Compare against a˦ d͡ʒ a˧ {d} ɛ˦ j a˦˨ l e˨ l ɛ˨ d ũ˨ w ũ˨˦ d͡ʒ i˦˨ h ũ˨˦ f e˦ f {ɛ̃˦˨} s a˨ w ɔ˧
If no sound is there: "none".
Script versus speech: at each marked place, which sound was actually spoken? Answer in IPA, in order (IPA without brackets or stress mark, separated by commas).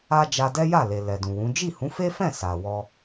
d, ɛ̃˦˨